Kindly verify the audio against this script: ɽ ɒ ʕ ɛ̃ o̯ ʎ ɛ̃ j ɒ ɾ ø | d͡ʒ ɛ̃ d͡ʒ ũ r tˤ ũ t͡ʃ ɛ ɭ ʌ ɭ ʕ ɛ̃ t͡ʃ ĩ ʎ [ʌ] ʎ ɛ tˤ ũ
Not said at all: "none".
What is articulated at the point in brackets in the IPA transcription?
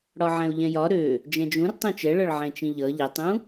ʌ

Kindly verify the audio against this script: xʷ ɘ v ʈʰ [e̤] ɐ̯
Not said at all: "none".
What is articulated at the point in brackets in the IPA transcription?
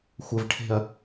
e̤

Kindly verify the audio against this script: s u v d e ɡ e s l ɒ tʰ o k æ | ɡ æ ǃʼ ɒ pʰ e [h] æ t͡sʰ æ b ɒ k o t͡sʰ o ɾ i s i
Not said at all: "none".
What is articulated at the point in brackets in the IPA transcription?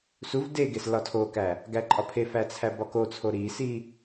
f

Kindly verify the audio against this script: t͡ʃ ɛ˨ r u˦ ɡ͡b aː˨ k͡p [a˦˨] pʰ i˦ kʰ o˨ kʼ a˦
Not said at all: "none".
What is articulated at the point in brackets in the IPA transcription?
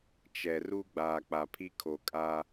a˨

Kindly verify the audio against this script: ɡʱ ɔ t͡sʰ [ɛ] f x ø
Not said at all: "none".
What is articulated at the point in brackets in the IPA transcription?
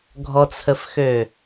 ə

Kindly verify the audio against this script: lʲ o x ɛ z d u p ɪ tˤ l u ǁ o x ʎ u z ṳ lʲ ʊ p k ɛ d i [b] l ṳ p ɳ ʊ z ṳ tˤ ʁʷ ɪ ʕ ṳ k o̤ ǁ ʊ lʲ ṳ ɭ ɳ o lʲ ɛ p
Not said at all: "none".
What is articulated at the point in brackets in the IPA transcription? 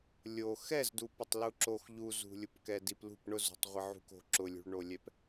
p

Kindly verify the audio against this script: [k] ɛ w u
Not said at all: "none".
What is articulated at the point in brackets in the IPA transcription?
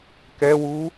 k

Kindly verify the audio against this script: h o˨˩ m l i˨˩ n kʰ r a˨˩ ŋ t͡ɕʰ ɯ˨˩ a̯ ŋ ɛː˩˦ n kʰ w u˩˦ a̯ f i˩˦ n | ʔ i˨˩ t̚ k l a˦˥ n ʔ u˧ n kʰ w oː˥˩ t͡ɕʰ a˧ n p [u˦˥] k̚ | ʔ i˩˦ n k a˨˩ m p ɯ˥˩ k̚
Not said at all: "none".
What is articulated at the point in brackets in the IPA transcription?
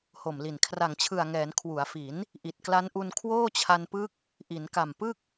ɯ˦˥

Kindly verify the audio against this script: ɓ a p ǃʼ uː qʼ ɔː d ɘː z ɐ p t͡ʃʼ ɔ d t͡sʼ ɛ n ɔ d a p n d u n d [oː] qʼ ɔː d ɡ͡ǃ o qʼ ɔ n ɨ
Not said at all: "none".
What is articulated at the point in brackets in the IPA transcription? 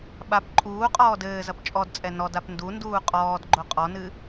uː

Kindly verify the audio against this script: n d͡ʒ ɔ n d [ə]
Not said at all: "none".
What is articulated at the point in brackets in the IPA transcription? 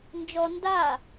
a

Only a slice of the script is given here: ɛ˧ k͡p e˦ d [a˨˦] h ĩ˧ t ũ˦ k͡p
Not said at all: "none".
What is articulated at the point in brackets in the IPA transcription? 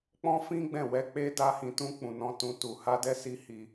a˦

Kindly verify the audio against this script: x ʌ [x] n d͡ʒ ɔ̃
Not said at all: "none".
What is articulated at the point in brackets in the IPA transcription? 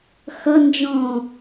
none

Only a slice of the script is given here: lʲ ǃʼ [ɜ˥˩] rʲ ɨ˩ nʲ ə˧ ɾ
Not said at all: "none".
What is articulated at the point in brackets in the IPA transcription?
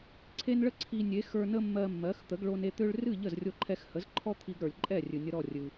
ɛ˥˩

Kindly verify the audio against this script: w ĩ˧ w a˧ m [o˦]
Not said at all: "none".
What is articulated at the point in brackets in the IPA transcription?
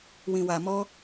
ɔ˦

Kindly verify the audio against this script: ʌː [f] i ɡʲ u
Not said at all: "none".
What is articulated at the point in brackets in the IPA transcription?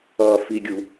f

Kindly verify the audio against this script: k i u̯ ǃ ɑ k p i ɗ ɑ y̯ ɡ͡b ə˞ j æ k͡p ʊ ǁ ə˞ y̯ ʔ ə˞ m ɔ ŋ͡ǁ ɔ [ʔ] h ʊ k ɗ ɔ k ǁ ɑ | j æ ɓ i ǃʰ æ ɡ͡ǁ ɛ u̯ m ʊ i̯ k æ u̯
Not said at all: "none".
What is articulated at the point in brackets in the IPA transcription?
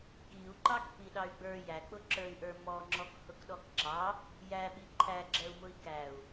k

